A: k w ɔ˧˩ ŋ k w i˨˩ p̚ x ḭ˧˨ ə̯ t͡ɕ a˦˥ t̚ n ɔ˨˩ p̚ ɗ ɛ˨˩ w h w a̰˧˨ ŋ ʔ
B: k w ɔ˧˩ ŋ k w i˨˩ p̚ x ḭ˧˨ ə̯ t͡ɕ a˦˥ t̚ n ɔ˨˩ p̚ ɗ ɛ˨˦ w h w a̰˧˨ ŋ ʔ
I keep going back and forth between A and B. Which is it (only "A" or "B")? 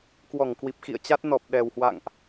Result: A